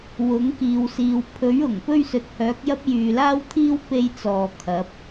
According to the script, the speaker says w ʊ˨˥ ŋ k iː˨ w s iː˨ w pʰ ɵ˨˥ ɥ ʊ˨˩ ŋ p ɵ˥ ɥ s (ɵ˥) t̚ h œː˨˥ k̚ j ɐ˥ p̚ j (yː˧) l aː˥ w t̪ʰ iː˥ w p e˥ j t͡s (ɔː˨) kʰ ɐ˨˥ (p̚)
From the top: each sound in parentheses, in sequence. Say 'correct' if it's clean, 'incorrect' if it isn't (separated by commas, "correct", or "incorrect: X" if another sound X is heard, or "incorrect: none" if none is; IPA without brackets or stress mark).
incorrect: ɵ˨˥, incorrect: yː˨, correct, correct